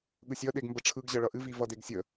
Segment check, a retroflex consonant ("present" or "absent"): present